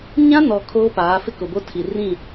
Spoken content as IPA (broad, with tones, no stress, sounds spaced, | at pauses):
ɲ ã˦ n ɔ˨ kʰ oː˦ p aː˨˦ f ɪ˦ k ʊ˨ b o˦ tʰ i˨ r ĩ˦˨